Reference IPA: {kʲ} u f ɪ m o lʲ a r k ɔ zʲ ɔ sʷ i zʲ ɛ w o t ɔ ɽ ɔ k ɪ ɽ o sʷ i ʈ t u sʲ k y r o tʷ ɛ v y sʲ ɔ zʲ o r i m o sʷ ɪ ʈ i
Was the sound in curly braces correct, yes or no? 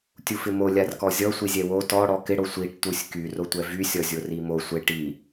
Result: no